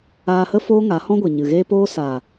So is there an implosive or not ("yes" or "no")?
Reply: no